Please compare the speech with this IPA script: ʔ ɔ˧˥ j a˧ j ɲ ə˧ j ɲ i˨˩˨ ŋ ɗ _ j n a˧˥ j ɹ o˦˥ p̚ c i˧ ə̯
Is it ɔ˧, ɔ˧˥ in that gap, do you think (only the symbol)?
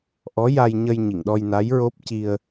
ɔ˧